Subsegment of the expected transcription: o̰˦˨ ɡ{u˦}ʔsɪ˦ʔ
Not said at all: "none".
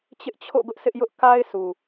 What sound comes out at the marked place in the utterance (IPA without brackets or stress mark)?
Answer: ʊ˦